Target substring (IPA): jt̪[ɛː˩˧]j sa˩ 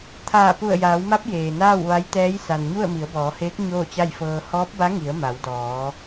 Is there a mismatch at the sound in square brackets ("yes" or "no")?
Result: yes